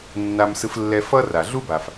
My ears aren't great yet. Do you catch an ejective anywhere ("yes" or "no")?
no